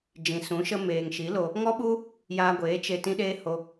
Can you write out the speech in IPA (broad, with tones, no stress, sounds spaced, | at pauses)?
d͡ʒ ĩ˨ s ũ˨˦ ʃ ə˦ m eː˨ ŋ ʃ i˨˦ l o˧ | ŋ ɔ˦ ɓ u˦ | j aː˧ ɡʷ eː˨˦ t͡ʃ e˧ t ĩ˦ ɗ eː˦ h o˧